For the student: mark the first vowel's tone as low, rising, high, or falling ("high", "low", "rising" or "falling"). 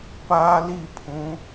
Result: high